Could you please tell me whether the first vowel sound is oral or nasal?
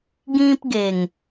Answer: nasal